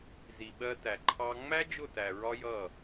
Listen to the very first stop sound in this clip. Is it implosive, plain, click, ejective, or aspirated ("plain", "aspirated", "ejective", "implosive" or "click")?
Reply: implosive